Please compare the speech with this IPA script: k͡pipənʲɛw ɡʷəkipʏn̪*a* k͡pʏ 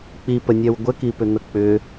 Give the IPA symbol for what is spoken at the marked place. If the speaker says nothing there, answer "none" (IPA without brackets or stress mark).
ə